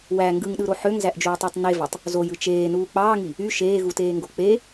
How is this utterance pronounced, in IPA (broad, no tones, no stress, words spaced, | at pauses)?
wæ ŋɡɯŋɗɯɾo ħøŋzæʔd͡ʒuːtˤætˤ nevɑtˤ | zojɯ t͡ʃeːnuː k͡pɑːŋi | y ʃeːɣuteːŋɡo k͡pe